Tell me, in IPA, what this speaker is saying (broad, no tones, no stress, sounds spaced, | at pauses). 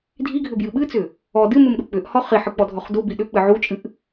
dʱ i ɡʱ ʏ b j ɨ ɓ ɨ t͡s ʏ | ɔ d ɨ m ɨ m ɗ u k͡p ʏ ʔ h ɔ χ i ħ ɨ k͡p ɔ dʱ ɔ χ d u b i ɗ ʏ k͡p ɨ ʕ u t͡ʃʼ ɨ ʔ